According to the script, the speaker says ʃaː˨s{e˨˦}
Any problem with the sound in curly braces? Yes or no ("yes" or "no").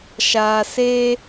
yes